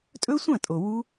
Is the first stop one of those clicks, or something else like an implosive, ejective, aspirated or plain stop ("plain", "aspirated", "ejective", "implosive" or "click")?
ejective